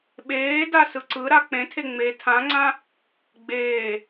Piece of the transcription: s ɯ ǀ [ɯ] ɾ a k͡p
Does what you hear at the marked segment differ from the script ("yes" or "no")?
no